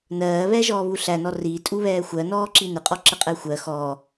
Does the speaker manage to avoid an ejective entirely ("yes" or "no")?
no